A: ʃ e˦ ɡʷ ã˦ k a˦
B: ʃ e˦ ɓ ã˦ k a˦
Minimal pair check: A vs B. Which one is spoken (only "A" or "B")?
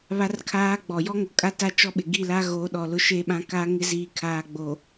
B